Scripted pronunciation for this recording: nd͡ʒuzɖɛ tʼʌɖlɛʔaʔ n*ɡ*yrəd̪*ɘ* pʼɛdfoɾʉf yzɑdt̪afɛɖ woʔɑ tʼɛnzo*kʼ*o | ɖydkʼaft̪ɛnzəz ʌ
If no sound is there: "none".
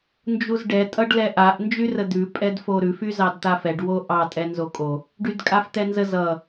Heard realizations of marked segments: d͡ʒ, ʉ, kʼ

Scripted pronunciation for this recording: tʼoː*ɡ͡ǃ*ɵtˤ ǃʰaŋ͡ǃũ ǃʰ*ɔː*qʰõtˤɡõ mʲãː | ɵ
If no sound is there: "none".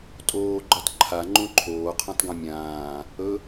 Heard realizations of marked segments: ɡ͡ǃ, oː

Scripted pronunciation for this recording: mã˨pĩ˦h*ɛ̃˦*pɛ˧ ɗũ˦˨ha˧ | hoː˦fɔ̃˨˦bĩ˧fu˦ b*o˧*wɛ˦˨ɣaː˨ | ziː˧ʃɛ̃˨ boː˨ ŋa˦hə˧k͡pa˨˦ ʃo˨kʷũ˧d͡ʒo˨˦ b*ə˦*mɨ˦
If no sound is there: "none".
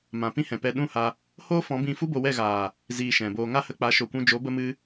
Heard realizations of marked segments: ɛ̃˨, o˧, ə˦

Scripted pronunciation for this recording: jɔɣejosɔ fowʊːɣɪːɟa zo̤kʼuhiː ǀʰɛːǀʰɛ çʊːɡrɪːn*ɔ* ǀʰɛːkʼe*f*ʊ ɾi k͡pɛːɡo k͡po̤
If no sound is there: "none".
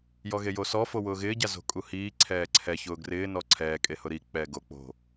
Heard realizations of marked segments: ɔ, h

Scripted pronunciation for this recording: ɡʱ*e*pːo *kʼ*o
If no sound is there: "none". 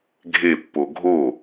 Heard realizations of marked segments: e, ɡʱ

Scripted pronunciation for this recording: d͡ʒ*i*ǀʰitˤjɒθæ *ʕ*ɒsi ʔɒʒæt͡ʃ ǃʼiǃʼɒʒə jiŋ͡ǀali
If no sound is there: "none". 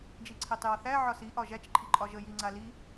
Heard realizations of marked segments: i, ʕ

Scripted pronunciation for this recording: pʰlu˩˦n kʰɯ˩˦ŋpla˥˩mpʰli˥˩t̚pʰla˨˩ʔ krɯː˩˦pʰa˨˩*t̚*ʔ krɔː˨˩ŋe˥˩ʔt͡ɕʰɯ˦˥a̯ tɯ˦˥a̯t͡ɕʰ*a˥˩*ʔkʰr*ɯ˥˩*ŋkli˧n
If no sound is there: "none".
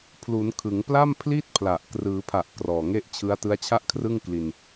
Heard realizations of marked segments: none, a˥˩, ɯ˥˩

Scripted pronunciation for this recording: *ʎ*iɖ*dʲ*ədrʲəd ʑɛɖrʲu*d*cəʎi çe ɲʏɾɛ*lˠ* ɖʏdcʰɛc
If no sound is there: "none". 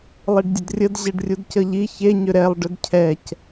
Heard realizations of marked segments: lˠ, dʲ, d, lˠ

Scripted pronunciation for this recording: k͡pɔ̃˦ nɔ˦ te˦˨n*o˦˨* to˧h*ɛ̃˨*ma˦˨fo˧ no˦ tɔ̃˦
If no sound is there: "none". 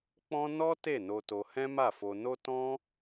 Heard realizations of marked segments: o˧, ɛ̃˦

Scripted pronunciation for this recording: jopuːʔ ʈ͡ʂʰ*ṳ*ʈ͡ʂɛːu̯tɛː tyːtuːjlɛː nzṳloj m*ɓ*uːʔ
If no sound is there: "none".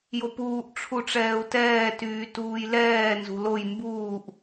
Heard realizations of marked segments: u, b

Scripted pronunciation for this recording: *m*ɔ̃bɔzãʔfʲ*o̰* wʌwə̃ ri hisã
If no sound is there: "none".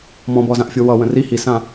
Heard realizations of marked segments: m, o

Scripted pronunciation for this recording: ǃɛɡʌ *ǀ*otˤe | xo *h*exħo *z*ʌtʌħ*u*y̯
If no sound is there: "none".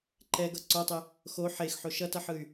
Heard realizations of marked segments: ǀ, ħ, ʃ, ɯ

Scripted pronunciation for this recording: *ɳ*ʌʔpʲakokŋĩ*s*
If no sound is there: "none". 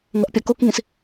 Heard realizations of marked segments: ŋ, s

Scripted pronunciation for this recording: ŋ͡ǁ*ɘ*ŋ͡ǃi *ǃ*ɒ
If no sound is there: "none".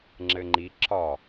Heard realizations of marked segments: ɘ, ǁ

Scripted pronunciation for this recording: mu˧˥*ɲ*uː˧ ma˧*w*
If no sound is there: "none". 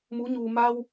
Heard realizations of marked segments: ɲ, w

